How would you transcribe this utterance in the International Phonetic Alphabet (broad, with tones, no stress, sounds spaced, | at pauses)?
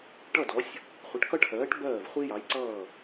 ʈ ʌ˥˨ d ɔ˨˥ sʲ | χʷ ʌ˨˥ ʈ k ʌ˥ ʈʰ ɜː˨˥ ʈ b ɜː˥˨ v χʷ i˥ j ɑ˨˥ j ǀ ʌː˥˨